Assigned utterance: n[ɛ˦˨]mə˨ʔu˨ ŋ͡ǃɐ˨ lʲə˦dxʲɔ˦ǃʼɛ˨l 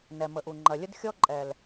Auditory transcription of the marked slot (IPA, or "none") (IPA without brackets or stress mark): ɛ˨